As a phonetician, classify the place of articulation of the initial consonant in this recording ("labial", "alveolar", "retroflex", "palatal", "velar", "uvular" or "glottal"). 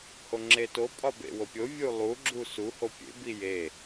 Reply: glottal